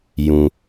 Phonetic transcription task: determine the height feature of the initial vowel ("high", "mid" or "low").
high